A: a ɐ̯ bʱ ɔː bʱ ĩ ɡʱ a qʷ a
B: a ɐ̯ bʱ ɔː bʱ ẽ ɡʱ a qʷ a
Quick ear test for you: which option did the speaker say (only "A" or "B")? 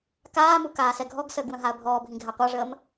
A